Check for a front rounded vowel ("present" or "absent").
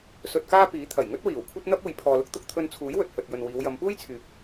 present